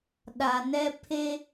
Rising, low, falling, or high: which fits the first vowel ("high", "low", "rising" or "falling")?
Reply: low